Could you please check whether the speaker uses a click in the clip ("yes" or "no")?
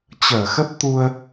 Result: no